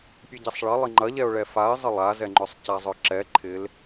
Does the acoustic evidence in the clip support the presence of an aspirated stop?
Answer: yes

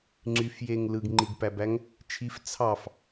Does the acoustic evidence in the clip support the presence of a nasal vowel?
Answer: no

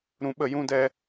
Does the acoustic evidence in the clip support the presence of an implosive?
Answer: yes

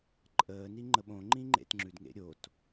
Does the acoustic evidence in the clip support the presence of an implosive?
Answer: yes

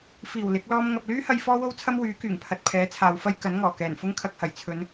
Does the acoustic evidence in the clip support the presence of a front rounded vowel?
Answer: yes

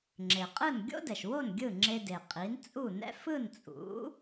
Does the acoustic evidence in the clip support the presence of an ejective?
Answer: yes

